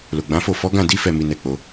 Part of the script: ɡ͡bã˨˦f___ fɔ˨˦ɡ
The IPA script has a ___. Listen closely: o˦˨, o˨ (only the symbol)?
o˦˨